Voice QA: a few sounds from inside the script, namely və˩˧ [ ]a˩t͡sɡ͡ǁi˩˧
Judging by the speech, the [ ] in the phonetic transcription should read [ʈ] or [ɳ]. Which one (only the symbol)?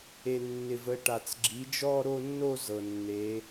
ʈ